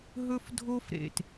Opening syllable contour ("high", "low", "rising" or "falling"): high